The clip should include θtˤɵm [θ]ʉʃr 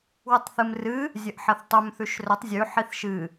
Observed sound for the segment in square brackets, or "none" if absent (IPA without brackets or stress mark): θ